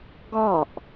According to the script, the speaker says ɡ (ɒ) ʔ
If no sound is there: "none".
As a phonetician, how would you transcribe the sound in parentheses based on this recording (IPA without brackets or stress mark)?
ɒ